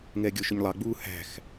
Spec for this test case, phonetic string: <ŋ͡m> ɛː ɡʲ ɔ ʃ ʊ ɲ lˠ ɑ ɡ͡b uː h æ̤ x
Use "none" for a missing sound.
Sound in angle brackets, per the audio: ŋ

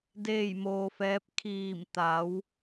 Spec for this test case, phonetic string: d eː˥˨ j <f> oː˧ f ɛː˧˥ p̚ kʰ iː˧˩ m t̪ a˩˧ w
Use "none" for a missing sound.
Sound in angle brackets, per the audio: m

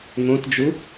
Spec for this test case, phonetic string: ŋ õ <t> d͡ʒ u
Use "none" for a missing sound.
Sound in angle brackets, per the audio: t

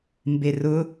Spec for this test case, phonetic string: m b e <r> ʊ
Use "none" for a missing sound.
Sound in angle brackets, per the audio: r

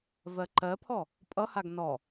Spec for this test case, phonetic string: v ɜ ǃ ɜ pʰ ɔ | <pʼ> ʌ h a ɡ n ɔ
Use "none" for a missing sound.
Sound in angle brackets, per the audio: pʼ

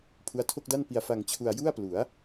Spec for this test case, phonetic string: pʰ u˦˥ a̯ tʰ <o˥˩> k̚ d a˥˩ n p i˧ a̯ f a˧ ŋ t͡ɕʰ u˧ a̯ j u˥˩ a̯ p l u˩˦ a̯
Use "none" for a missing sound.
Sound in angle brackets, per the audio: o˥˩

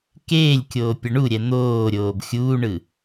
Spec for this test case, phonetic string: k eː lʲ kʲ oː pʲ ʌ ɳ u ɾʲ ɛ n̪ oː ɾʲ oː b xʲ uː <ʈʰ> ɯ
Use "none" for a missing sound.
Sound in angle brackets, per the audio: ɳ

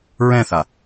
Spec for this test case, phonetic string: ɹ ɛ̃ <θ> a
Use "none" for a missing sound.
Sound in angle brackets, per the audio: θ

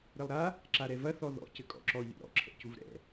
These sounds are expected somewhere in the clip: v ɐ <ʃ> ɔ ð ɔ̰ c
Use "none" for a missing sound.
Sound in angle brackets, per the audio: θ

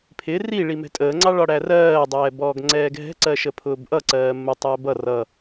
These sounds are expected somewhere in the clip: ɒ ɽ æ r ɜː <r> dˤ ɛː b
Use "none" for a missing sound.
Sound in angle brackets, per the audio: none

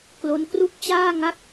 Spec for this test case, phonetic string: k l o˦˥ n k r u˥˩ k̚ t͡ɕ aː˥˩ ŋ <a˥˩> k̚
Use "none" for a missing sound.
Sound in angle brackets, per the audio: a˥˩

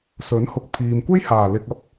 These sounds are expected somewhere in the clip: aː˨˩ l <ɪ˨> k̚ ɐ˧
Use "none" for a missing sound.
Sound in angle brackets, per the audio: ɪ˨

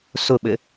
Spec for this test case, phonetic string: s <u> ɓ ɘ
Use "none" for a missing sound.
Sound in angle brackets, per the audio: ʊ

